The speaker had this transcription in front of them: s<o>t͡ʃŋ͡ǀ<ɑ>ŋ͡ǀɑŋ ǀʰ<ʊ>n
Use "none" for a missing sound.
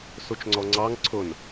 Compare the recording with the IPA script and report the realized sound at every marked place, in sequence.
u, ɔ, ʊ

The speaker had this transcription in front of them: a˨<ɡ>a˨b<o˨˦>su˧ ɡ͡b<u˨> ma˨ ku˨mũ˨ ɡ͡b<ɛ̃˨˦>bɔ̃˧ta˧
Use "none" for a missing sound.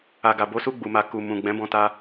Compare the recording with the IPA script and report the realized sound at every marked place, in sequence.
ɡ, o˨˦, u˨, ɛ̃˨˦

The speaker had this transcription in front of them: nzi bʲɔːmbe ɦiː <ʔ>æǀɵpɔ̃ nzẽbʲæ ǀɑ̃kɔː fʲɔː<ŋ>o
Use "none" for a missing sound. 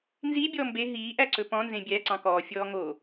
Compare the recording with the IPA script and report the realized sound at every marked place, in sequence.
ʔ, ŋ

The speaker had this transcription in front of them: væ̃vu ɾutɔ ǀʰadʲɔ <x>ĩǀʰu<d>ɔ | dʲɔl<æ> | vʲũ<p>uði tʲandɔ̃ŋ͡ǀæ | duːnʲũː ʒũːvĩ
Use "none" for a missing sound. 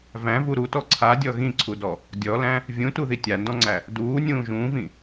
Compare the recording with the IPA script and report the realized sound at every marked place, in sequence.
ɣ, d, æ̃, t

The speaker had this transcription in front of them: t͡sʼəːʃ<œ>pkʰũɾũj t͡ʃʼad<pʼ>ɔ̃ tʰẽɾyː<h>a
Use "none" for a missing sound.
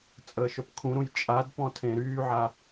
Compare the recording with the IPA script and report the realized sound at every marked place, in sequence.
œ, p, ʕ

